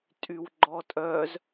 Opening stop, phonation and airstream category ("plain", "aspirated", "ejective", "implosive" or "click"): ejective